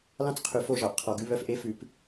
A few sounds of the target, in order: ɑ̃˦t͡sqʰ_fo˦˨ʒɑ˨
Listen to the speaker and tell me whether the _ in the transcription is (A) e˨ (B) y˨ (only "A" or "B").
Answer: B